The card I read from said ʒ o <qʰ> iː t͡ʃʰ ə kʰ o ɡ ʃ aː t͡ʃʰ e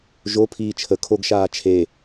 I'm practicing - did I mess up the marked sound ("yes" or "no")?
yes